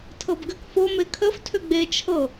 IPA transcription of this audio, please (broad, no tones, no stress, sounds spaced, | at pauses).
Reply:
tʰ ɤ b ɡ ʏ k f o m e kʰ ə f tʰ ʏ ɡ͡b e t͡ʃʰ ɤ